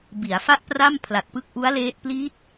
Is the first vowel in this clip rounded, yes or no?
no